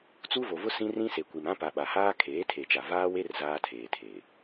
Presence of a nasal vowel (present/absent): present